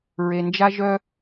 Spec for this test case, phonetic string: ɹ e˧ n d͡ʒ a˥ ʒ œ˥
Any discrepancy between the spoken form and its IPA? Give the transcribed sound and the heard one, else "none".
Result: none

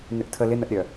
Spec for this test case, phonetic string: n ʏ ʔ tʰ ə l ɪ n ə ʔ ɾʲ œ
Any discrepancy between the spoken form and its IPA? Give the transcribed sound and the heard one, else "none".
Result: none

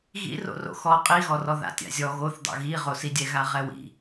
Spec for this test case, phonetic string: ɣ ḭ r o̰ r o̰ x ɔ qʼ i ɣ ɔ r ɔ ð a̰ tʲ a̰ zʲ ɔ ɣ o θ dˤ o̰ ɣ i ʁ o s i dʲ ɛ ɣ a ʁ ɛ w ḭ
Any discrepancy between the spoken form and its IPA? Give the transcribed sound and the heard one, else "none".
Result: none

